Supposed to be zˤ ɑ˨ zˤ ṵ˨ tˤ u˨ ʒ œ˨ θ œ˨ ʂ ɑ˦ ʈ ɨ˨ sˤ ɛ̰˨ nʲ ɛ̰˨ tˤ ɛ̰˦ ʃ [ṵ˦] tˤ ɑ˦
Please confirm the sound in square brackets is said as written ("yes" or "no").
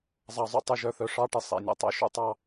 yes